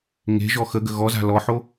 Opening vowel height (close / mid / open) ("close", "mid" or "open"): mid